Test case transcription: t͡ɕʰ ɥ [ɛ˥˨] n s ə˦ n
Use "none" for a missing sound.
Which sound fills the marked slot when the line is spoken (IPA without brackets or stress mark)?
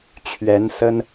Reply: ɛ˨˦